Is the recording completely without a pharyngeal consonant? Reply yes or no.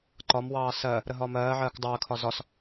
no